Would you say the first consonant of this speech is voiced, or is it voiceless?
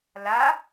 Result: voiced